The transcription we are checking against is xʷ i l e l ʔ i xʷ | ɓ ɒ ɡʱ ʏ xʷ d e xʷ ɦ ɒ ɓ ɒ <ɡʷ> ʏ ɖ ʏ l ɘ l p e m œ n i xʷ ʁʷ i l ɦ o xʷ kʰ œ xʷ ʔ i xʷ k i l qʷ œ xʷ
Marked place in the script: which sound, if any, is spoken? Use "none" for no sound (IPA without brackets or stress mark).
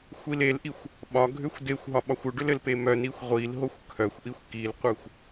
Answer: xʷ